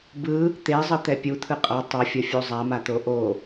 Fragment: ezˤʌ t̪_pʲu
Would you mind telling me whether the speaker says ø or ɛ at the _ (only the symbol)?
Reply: ɛ